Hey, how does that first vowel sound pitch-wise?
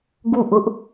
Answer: falling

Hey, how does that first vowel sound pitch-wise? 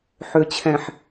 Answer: low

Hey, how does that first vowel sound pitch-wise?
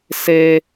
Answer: high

